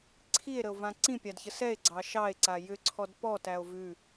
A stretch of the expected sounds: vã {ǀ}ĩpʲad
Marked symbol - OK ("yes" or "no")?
yes